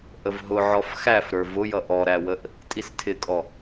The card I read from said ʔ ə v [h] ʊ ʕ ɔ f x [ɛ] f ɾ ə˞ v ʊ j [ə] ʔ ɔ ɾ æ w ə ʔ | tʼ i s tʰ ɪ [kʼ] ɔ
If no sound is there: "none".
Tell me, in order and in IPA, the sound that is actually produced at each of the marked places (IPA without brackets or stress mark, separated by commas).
ɦ, æ, ʌ, kʼ